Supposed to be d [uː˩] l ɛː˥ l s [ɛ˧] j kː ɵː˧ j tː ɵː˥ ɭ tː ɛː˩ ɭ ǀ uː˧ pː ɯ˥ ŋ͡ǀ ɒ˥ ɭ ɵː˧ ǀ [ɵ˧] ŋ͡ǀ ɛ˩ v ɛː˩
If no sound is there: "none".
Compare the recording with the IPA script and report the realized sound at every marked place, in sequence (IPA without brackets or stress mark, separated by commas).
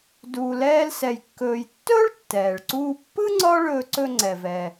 uː˧, ɛ˧, ɵ˧